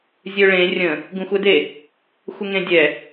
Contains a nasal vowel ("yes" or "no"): yes